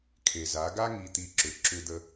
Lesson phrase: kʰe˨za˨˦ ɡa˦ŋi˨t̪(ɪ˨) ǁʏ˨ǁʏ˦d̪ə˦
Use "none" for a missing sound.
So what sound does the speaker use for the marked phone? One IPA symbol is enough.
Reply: i˨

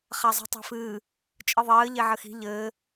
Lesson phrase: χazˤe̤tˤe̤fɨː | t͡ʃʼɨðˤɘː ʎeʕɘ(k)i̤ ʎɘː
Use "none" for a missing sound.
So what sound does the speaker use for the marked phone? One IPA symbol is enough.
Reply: x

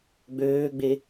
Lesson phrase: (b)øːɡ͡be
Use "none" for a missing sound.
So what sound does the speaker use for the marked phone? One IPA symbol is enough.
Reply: ɡ͡b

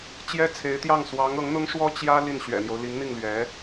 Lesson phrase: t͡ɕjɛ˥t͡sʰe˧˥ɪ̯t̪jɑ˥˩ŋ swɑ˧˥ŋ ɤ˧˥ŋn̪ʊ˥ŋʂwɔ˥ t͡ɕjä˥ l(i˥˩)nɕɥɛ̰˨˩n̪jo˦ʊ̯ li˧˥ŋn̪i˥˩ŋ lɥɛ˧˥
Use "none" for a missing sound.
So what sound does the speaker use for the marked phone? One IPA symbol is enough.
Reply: i˥˩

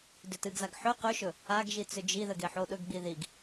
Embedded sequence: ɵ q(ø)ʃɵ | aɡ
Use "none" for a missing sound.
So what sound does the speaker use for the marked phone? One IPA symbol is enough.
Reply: ɵ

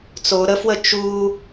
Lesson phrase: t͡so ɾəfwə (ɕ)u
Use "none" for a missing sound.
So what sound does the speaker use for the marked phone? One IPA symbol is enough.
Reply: t͡ʃ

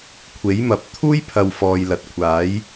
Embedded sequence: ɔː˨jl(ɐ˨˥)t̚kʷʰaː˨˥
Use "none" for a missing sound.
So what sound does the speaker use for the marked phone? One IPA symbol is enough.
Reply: ɐ˨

